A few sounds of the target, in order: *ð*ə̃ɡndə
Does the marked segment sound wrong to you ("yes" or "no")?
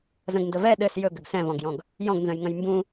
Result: yes